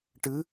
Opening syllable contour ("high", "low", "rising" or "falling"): rising